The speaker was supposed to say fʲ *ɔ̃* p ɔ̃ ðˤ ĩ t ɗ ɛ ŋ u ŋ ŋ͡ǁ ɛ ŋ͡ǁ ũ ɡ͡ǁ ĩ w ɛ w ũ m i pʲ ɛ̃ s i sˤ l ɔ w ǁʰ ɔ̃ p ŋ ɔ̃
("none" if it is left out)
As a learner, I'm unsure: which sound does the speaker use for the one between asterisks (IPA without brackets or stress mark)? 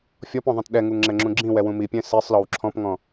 ɔ